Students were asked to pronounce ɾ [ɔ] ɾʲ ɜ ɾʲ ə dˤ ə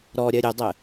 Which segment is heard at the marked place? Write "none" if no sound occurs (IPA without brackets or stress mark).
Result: ɔ